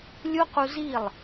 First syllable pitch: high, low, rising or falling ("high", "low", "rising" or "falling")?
high